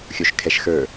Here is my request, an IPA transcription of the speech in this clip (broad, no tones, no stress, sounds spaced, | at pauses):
xʲ o ʃ kʰ ɛ ʃ x ə˞